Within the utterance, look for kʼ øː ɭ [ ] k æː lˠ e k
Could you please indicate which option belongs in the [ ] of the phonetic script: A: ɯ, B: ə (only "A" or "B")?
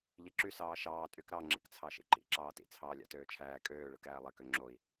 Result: A